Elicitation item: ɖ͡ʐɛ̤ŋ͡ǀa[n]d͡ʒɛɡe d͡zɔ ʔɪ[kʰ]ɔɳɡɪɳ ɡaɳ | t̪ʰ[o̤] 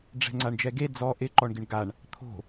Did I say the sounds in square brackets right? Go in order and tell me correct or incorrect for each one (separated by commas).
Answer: incorrect, incorrect, correct